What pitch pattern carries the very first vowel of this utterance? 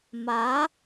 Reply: rising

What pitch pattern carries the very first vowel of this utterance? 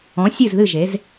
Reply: rising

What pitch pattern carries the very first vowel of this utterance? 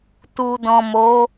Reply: low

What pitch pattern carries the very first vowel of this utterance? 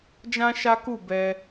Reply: high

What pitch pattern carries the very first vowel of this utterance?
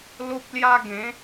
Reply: high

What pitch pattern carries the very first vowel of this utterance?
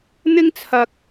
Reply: high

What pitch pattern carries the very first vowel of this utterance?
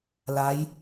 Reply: rising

